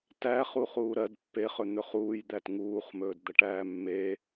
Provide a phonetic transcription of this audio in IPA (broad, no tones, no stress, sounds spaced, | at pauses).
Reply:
t æ χ u χ uː ɾ ɜ d pː e χ ɵ n̪ ɵ χ uː j d̪ æ t ŋ uː χ m ɵː d d̪ ɐ ʈ æː mː e